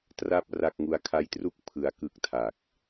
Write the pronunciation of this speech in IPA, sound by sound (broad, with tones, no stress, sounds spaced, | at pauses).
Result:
t r a˥˩ p̚ r a˥˩ k̚ ŋ u˧ a̯ kʰ a˦˥ j t r u˥˩ k̚ pʰ ɯ˦˥ a̯ k ɯ˦˥ k̚ tʰ a˨˩ k̚